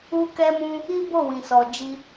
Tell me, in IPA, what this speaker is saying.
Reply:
u˦ k ɛ˦ m ũ˦ | i˦ b o˦˨ w ĩ˨ s ɔ˨ d͡ʒ i˧

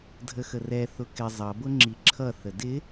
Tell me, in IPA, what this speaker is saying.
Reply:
dʱ ə x ə r ɛ θ ʊ k ɪ zˤ ʌ b ʊ ŋ͡ǁ i ǁʰ ʌ θ ə d ɪ

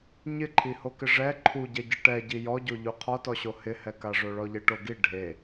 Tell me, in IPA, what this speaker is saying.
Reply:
ɲ ɪ ǃʰ i h o k ɪ ʐ ɛ ǃʰ u ɟ ɛ ɟ i ʈ ɛ ɟ i j ɔ ɟ o ʎ u qʰ ɔ t ɔ ɕ o h ɪ h ɛ k a ʐ o ɭ ɔ ʎ e ʈ o ɡ i ɖʱ e

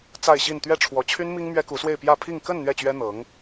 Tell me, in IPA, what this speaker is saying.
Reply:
t͡s a˥˧ ɪ̯ ɕ i˥˧ n t̪ ɥ ɛ˥˩ ʈ͡ʂʰ w ɔ˧˥ t͡ɕʰ y˥ n m i˥ ŋ m ɥ ɛ˥ k u˧˥ s w e˥˧ ɪ̯ p j ä˥˧ pʰ i˥˧ ŋ k ə˥˧ n n̪ ɥ ɛ˥˩ t͡ɕ ɥ ɛ˥ n̪ ɤ˧˥ ŋ

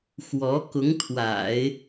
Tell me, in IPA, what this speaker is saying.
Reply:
x w ɔ˧˥ k ʊ˧˥ ŋ t̪ʰ w a̰˨˩˦ ɪ̯

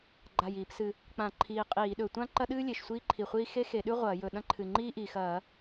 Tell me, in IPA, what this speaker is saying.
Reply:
ɡ͡ǃ a˨˩ j iː˧˩˧ p s ɨ˨˩ | k͡p ã˧˩˧ ǃʰ iː˨˩ qʼ iː˧˩˧ ɗ ɵ˨˩ tʷ ã˥ ǃ ɐ˥ ɗ ɨː˥ lʲ e˨˩ ʃ sʷ iː˥ ǃʰ i˨˩ χʷ iː˥ x e˥ x e˧˩˧ ɗ ʉ˥ ʁʷ ɐː˧˩˧ j ɵ˨˩ ɗ ɐ̃˥ ǃʰ ɨ˨˩ ŋ͡ǃ iː˥ ʔ i˨˩ x ɐː˧˩˧

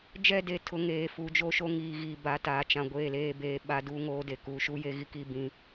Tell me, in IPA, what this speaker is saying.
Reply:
d͡ʒ ɛ˦˨ d e˨ tʰ ʊ˨ ŋ eː˨ f u˨˦ d͡ʒ o˦˨ ʃ o˦ ŋ iː˨ ɣ iː˨ b a˨˦ t aː˨ t͡ʃ ã˨ ɡʷ eː˦˨ l eː˦ b eː˦ ɓ a˦ d uː˦ ŋ oː˦ d e˨ k uː˨ ʃ u˦ j e˦ ɣ i˦ k i˦ b ĩ˦

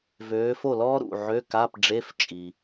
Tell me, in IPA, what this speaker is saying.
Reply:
v øː˨˦ f o˥˩ l ɔː˥ ɾ ṵ˥˩ ʕ ø˧˥˧ k a˧˥˧ p ɖ͡ʐ e˧˥˧ f t͡ʃʼ i˨

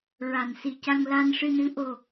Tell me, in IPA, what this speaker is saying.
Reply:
ɹ a˨˩ n s i˨˩ c a˧ ŋ l a˧ n ʂ ɨ˧ n ɨ˧˥ ʔ o˨˩

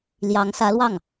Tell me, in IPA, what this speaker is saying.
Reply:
l j ɑ˧˥ ŋ s ä˧˥ l w ɑ˥˩ ŋ

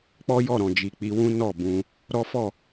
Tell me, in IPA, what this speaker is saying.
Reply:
k͡p ɔ˦ j ɔ˦˨ ɾ ɔ̃˨ d͡ʒ i˨ k͡p i˧ w ũ˦ n ɔ˦˨ b ũ˧ | ɾ ɔ˦ f ɔ˦˨

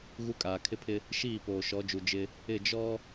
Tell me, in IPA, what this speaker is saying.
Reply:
ɣ u˦ kʼ aː˨ kʰ ɪ˦ pʰ ɪ˦ | ʃ iː˦˨ p oː˨ ʃ ɔ˨˦ d͡ʒ u˨ d͡ʒ ɪ˦ | ɪ˦˨ d͡ʒ ɔ˦

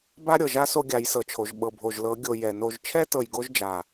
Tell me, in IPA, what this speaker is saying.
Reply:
b a˦ ɾʲ ɤ˨ ʒ a˦ s o˦ ɡʲ a˨˦ j s ɤ˨ t͡ʃʰ o˨ ʒ ɓ ɤ˨ bʱ o˨ ʒ l ɤ˨˦ ɡʲ o˨ j ɛ˨ n o˧ ʒ t͡ʃʰ ɛ˦ t ɤ˨ j ɡ o˧ ʒ d͡ʒ a˨

